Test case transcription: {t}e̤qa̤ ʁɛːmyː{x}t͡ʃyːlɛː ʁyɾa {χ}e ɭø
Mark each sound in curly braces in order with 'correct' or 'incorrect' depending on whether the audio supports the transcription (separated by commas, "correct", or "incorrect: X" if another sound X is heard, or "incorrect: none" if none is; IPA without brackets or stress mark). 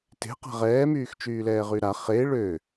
correct, correct, correct